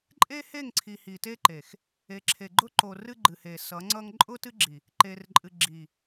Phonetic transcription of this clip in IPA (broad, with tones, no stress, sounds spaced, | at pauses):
ǃʼ e˦ h e˦˨ ŋ ǀʰ i˨ h i˨ t e˦ ǃ e˨ x | e˨ ǁʰ e˨ ɡ͡ǃ ʊ˦ ǃ o˨ r ɨ˦ ɡ͡ǃ ɨ˨ h e˨ s ʌ˨˦ ŋ͡ǀ ʌ˦ ŋ ǃʼ ʊ˦ t ɨ˦ ɡ͡ǁ i˨ | ǃ e˨ r ǃʼ ɨ˨ ɡ͡ǁ i˨